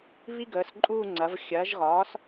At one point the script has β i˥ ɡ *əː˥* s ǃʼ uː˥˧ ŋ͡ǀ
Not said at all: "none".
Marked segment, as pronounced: əː˩˥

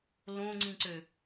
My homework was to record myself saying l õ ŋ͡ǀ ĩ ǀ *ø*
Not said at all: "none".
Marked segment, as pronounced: ø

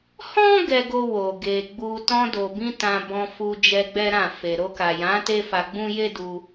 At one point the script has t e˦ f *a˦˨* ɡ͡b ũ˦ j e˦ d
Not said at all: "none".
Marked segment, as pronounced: a˧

